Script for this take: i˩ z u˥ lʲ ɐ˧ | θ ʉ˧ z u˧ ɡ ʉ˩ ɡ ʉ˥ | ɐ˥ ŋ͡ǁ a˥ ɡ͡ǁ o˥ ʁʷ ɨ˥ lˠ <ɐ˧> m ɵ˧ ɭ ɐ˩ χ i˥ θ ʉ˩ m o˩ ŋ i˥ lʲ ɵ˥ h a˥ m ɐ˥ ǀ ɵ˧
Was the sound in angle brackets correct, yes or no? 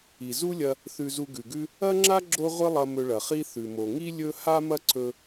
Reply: yes